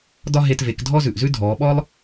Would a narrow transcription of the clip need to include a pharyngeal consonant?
no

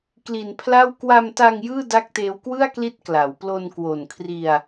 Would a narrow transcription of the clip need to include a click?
no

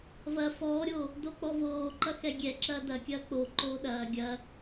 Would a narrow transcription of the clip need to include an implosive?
yes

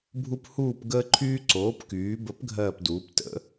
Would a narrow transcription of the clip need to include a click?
yes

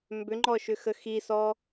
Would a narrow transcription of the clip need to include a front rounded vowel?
yes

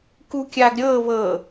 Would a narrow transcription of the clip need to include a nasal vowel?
no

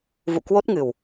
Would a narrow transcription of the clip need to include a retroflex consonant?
no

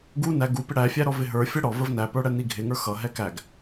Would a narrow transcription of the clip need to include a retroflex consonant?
yes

